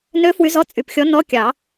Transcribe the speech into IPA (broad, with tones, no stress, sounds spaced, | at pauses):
n ø˧˥ f w y˧˥ z ɔ˧˥˧ t͡sʼ y˨˩ p xʲ ɔ˧˥ n ɔ˧˥˧ kʲ ɑ˨˩˦